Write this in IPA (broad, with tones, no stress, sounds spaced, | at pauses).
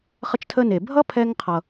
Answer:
χ ə˧ t͡ʃ tʰ ə˧ n e˩ bʱ ʌ˥ pʰ ɛ˧ ŋ qʰ ʌ˩